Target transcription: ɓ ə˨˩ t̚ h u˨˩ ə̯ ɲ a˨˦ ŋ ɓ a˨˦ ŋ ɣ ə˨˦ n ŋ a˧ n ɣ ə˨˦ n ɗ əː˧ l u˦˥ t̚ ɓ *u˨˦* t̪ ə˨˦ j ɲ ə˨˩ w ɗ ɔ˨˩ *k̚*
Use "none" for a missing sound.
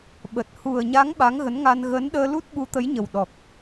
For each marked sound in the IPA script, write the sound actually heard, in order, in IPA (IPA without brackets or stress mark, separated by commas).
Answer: u˨˦, k̚